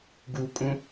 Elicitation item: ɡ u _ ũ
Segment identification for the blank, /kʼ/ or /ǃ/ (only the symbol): kʼ